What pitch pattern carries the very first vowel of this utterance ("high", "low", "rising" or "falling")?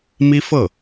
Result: high